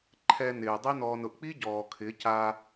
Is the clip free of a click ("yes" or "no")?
no